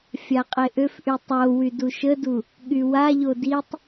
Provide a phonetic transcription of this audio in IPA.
fʲ a qʼ e ʔ ø f ʔ y tˤ o w y d u ʃ ə d u | ɠ y w a ʎ o d i tˤ

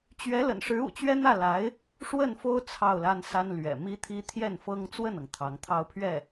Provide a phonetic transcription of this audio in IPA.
t͡ɕ ɥ ɛ˧˥ l ə̰˨˩ n ʂ ɻ̩˧˥ ṵ˨˩ t͡ɕ ɥ ɛ˥ n̪ ä˥˩ l a˧˥ ɪ̯ | ʂ w ə˥˩ n f o˥ ʊ̯ t͡sʰ ɑ˥˩ ʊ̯ l a˥ n s a˥ n l ɥ ɛ̰˨˩ m i˥ t̪ʰ i˥ t̪ʰ j ɛ˥˩ n f ɤ˥ ŋ t͡s w ə˥˩ n ɤ˩ ŋ t̪ʰ ɑ˧˥ ŋ t̪ʰ ɑ˥˧ ʊ̯ pʰ ɥ ɛ˥˩

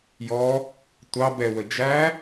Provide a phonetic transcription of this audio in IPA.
j ɔ | tʷ ɑ b ɛ w ə d͡ʒ æ

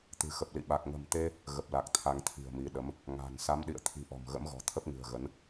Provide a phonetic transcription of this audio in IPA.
t̪ ɨ̤˨˩ x ə˨˩ p̚ l ḭ˧˨ ɓ a˨˩ k̚ ŋ ə̤˨˩ m t̪ e˧ | ɣ ə˨˩ p̚ l a˨˩ k̚ t̪ʰ a˧ ŋ t̪ʰ i̤˨˩ ə̯ m i˨˦ ɗ ə˨˦ m | ŋ a̤˨˩ n s a˨˦ m ɗ ḭ˧˨ ə̯ t̪ʰ i̤˨˩ ʔ ɔ̤˨˩ m ɣ ə̰˧˥ m ɣ ɔ̤˨˩ t̪ʰ ə˦˥ p̚ ŋ ɨ̤˨˩ ə̯ ɣ ə˨˦ n

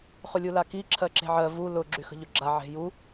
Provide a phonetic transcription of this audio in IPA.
χ ʊ lʲ u l a k i ǁʰ ɜ ǁ e̤ ʕ ɜ v u l ʊ ɡ͡ǁ y x ə̤ ʎ ʊ ɡ͡ǁ a ʕ e̤ j u

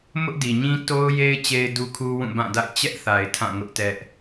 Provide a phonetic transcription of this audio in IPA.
m ʊ˦ ʔ d i˨ ɲ ĩ˦ t o˦ ʊ̯ j e˦ ɪ̯ t͡ɕ e˦ ɪ̯ d u˦ kʰ u˦ w ũ˦˨ b ã˦˨ d a̰˦˨ ɪ̯ t͡ɕ ɛ˦ ʔ θ a˨ ɪ̯ tʰ ã˦˨ ŋ ʊ˦ ʔ t ɛ˦ ʔ

